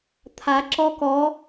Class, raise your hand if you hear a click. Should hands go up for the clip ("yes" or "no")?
yes